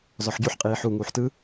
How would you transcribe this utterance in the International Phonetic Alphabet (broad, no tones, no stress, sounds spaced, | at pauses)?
z ɔ ħ ɟ u ħ qʼ iː ħ u ŋ uː ħ t ɯ